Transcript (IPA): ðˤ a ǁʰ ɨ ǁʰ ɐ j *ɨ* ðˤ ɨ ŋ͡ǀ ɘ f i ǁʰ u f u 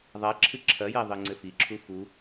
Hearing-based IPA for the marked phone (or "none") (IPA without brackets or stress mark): ɛ